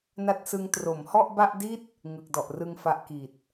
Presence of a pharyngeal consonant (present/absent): absent